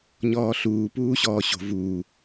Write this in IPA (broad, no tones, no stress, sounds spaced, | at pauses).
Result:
ɲ ɔː ɬ uː p uː ɕ ɔː ɕ o̤ v uː